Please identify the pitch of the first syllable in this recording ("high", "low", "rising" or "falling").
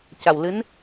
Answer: low